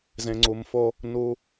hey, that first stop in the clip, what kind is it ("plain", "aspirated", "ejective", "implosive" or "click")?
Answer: click